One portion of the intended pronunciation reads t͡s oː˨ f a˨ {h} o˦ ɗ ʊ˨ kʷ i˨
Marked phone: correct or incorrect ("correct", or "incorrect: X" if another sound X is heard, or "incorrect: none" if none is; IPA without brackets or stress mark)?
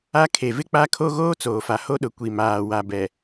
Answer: correct